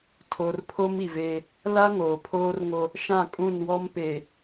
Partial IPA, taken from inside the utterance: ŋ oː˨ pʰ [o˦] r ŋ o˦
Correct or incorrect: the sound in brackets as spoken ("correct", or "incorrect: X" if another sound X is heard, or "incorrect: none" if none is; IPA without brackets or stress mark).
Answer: incorrect: oː˦